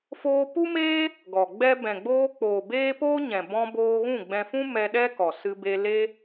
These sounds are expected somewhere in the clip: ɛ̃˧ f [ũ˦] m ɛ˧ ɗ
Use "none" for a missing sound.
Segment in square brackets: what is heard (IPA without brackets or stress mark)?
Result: ũ˦